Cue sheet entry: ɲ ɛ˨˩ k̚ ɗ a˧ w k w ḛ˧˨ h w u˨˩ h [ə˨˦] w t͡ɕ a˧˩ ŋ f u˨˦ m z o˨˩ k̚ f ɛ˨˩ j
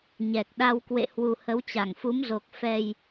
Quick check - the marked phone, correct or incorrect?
correct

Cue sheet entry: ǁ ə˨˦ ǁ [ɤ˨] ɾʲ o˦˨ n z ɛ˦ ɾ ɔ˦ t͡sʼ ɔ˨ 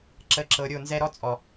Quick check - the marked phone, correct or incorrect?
correct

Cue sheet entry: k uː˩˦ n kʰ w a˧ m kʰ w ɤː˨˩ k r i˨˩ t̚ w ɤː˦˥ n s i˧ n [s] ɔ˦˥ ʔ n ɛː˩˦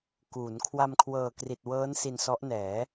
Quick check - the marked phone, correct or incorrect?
correct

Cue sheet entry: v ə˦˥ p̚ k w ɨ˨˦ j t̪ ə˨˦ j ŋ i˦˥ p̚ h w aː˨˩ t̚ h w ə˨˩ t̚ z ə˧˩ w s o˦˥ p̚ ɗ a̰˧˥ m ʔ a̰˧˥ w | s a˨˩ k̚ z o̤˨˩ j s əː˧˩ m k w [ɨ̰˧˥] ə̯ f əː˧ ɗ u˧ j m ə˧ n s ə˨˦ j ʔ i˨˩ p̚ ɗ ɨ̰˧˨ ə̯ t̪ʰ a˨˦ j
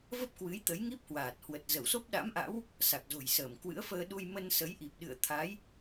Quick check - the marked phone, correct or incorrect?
correct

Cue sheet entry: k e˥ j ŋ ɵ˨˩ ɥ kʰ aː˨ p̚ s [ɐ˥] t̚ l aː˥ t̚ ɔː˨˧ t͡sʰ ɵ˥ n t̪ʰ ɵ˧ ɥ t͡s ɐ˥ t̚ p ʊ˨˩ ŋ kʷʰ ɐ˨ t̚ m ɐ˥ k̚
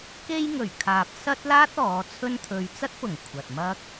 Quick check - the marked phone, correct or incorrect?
correct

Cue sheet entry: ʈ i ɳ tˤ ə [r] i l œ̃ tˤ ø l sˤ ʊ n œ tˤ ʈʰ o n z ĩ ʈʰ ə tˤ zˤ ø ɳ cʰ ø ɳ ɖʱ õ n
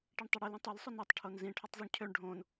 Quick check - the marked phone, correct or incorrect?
incorrect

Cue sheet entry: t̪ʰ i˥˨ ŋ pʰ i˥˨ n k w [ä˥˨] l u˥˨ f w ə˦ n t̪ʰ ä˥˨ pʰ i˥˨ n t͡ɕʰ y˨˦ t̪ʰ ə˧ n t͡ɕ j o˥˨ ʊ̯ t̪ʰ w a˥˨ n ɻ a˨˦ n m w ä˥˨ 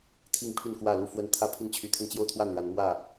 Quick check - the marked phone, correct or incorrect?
correct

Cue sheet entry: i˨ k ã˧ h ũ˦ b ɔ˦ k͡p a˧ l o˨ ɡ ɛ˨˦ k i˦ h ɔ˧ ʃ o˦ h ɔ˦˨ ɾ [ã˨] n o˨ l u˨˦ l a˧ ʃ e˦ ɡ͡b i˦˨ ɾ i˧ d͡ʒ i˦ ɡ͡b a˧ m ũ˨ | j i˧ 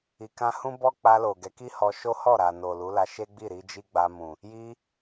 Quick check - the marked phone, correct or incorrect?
incorrect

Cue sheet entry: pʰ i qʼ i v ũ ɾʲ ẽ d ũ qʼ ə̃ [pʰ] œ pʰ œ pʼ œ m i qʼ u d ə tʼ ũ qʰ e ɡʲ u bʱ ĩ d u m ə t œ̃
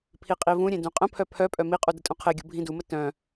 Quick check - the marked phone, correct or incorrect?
correct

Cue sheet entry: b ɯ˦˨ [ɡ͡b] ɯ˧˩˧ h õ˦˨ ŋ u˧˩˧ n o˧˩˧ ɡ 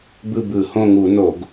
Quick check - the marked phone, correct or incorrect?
incorrect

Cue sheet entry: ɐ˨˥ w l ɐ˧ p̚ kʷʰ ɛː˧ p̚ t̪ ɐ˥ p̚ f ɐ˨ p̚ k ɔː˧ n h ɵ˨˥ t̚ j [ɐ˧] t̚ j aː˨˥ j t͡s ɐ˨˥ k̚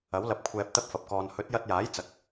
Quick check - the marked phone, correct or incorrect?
correct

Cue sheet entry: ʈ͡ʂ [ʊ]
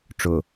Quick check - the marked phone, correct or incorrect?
correct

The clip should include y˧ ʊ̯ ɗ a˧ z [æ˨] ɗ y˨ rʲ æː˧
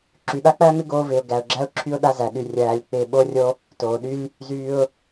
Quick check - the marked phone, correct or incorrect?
correct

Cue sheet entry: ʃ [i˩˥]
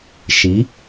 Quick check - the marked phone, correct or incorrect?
correct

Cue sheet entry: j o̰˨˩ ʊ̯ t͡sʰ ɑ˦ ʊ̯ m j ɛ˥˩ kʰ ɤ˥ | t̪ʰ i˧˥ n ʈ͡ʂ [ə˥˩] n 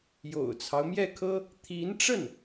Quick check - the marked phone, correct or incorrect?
correct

